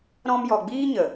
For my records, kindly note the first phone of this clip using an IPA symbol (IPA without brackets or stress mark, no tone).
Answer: ɾ